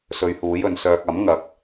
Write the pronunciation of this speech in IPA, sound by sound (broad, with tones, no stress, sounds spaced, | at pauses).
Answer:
s ɵ˨˧ ɥ h uː˨˥ j ɵ˨˧ n s œː˧ k̚ ɐ˨˥ m ŋ ɐ˨ k̚